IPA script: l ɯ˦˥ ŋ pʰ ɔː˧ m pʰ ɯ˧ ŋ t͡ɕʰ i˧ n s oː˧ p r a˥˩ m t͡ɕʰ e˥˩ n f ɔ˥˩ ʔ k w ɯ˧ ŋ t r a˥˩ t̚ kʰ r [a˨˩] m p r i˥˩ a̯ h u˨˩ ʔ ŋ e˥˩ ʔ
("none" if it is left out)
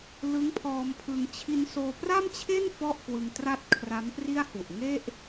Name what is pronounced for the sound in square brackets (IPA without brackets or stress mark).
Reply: a˦˥